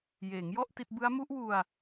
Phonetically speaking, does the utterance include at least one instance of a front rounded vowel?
no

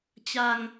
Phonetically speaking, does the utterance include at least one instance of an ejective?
no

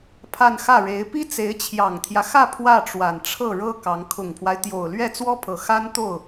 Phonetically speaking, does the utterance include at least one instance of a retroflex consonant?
yes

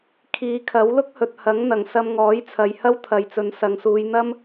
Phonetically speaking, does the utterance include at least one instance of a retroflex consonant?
no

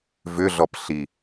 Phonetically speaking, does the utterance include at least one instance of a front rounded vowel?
yes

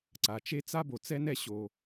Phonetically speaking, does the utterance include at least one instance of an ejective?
no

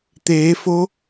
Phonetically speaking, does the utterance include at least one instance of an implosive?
no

